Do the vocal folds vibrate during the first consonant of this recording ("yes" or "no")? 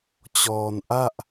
no